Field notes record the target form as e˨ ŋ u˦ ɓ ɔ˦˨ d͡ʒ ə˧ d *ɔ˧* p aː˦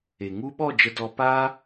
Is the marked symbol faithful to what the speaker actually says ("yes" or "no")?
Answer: yes